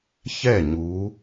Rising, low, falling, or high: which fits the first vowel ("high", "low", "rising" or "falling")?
falling